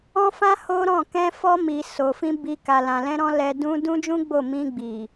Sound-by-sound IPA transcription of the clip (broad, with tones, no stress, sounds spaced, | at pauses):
ɔ̃˦ f ã˦ h o˦ ɾ ɔ̃˦˨ k ɛ̃˧ f ɔ˧ m i˨ s o˨ f ĩ˧ b i˧ k a˨ l ã˨ l ɛ̃˧ ɾ ɔ̃˧ l ɛ˧ d ũ˧ d ũ˦ d͡ʒ ũ˦ ɡ͡b o˦˨ m ĩ˧ ɡ͡b i˨